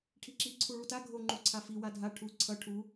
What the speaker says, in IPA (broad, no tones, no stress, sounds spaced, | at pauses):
ʈʰ i ǁ i ǀʰ u ɭ u t a ɡʱ o ŋ͡ǃ u ǀʰ a f i w a dʱ a ʈʰ u ǀʰ ʌ ʈʰ u